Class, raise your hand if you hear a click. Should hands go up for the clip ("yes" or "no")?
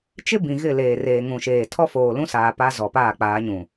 no